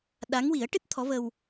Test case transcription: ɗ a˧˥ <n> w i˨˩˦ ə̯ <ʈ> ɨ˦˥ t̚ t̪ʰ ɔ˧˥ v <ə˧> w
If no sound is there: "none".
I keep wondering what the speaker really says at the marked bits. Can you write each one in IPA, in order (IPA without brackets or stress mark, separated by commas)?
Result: ŋ, ʈ, ə˧